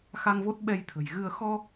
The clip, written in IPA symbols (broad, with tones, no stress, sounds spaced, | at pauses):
x a˧ ŋ v o˦˥ t̚ ɓ ɛ˧ j t̪ʰ ə̤˨˩ j ɣ ɨ˧ ə̯ x ɔ˧